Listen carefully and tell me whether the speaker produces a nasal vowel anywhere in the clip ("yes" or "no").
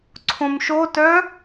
yes